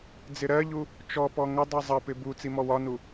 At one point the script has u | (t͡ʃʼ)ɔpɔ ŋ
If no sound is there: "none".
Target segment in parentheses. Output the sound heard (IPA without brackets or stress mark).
t͡ʃ